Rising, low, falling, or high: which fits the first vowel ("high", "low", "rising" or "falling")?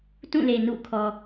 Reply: falling